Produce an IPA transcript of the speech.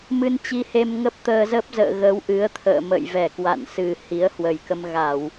m ɨ˧ n t͡ɕ i˧ h e˧ m ŋ ə˦˥ p̚ t̪ əː˧ z ə˦˥ p̚ z ə̰ː˧˨ ɣ ə˨˦ w ʔ ɨ˨˦ ə̯ t̪ʰ ə̰ː˧˨ m ə̰˧˨ j v ɛ˧˩ k w a̰˧˨ n s ɨ˨˩ h i˨˦ ə̯ h w ə˨˩ j k ə˧ m ɣ a˧˩˨ w

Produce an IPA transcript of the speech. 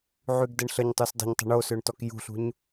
ʕ y ɡ d ə ɳ ɬ ə ɲ tˤ u s dˤ ə̤ ɲ tˤ ə̤ ɳ o s ø ɳ t ɔ k j ṳ ɬ ṳ ɲ

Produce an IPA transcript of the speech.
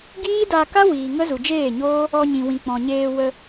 ɡ iː˦ d a˧ k a˦ w iː˨ ŋ ə˦ z u˨ d͡ʒ eː˦˨ ɲ oː˦ | ɔ˧ ɲ ĩ˨ w ĩ˨ k͡p ɔ̃˨ ɲ eː˧ w ə˧

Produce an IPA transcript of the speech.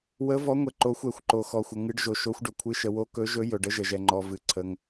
w ə˨˦ v ɔ˨˦ ŋʷ ɛ˨ ǃ o˨˦ xʷ ɛ˨ xʷ ǃ o˨ x ɔ˨ xʷ ə˨ ŋ ɨ˨˦ ɖ ʒ o˨ ʃ o˨˦ xʷ ɖ ɵ˨ kʷʰ ɨ˨˦ ʃ ə˨ w o˨˦ k ɵ˨˦ ʒ ɵ˨˦ j ɵ˨ ɖ ə˨˦ ʒ ə˨ ʒ ɛ˨ ŋ͡ǃ ɔ˨ v ɨ˨ ǀʰ ə˨ ŋ

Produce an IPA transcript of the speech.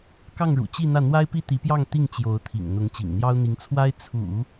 k ɑ˥˩ ŋ ɻ ṵ˨˩ t͡ɕ i˥˧ n̪ ä˥˩ n̪ w a˥ ɪ̯ p i˥ t̪ i˧˥ p j ɑ˥˧ ŋ t̪ i˥˩ ŋ t͡ɕ j o˧˥ ʊ̯ t̪ʰ ḭ˨˩ ŋ n̪ ʊ˧˥ ŋ t͡ɕ ḭ˨˩ ŋ n̪ j ɑ˥ ʊ̯ n̪ i˧˥ ŋ t͡sʰ w a˥ ɪ̯ t͡sʰ ṵ˨˩˦

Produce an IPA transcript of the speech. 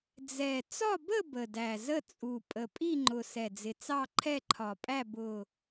d͡z ɛ˨˩ t͡s ɒ˥˧ b ə˥˧ b ə˨˩ d æ˨˩ z ə˥˧ t͡sʼ u˨˩ pʼ ə˨˩ pʼ i˥˧ ŋ͡ǃ ʊ˨˩ s ɛ˨˩ d͡z ɪ˨˩ t͡s ɑ˥˧ ǃʰ ɛ˥˧ ǃʰ ɒ˨˩ pʼ æ˥˧ b ʊ˨˩

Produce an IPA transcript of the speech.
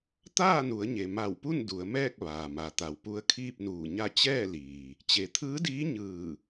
t̪ aː˥˨ n u˩˧ ə̯ ɲ e˩ m a˧˩ w p u˥˨ n d u˩˧ ə̯ m ɛː˥˨ k̚ ʋ aː˩ m a˩ t̪ a˩ w p u˧˥ ə̯ kʰ iː˥˨ p̚ n uː˧˩ ɲ a˥˨ t͡ɕ ɛː˥˨ l iː˩ | t͡ɕ e˩ t̪ʰ ɯː˧˥ d iː˧˥ ɲ ɯː˧˩

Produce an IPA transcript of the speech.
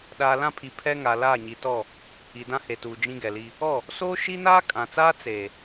ɗ aː˨ l ã˦ pʰ i˨ pʰ ɛ˦ ŋ a˨ l aː˦˨ ɲ i˨ t ɔ˦˨ | i˨ d ã˦ h e˨ t uː˨ d͡ʒ ĩ˦ ɡ ɛ˨ l i˦ | ɔ˦˨ | s oː˦ ʃ i˦ n aː˦ kʼ ã˨ t͡s aː˦ t͡s eː˨

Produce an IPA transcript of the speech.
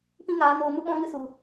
p ĩ˦ ŋ aː˨˦ n oː˧ m u˦ ɓ ɔ̃˦ ŋ ɨ˦ s u˨

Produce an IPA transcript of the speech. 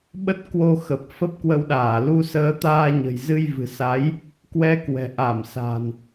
ɓ ə˦˥ t̚ k w o˧ x ə˨˩ p̚ f ə˦˥ p̚ k w ə˧ w ɗ aː˧˩ l u˧ s əː˧ t̪ aː˧ ɲ ə̤˨˩ j z ɨ˧ j v ɨ̤˨˩ s a˨˦ j | k w ɛ˧ k w ɛ̤˨˩ ʔ a˧˩ m s a̤˨˩ n

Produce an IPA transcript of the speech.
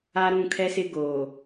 a˦ ɾ ũ˦˨ kʰ ɛ˦ s ɪ˦ ɡ oː˨

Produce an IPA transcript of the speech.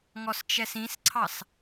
ŋ ɔ s t͡ʃ ɛ s ĩ s ǀʰ ɑ s

